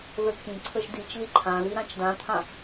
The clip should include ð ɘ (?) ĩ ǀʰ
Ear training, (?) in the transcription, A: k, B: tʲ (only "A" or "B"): A